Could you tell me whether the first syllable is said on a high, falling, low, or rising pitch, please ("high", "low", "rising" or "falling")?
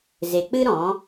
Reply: low